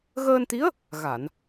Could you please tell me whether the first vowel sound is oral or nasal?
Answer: oral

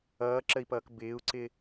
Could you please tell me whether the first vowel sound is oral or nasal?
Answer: oral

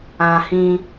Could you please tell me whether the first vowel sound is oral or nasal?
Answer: nasal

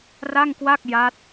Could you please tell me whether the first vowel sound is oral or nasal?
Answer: oral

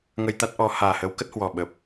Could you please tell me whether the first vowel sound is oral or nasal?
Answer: oral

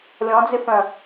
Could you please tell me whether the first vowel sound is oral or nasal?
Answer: nasal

